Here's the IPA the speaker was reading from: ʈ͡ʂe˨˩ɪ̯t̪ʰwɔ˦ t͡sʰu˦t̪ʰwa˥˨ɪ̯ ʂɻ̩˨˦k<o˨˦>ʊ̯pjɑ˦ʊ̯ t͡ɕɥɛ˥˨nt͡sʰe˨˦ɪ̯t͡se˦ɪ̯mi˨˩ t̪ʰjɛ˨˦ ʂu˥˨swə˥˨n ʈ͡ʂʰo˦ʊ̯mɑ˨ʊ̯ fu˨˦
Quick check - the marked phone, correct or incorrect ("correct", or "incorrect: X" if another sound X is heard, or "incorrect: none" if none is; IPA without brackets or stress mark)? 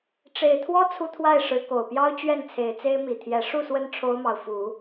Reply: incorrect: o˨˩